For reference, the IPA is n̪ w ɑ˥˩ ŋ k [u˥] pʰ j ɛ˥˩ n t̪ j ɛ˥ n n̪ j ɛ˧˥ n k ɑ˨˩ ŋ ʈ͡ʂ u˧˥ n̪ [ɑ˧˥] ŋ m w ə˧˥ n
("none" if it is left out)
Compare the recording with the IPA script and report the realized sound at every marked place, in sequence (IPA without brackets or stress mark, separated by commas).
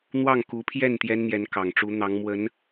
u˧˥, ɑ˧˥